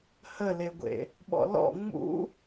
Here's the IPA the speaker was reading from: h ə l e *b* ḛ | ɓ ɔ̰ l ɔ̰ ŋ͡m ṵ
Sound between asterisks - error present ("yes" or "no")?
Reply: yes